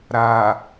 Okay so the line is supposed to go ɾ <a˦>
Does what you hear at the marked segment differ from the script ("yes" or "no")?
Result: yes